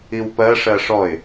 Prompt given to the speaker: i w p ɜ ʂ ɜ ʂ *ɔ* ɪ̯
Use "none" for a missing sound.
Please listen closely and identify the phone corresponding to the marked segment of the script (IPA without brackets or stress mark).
ɔ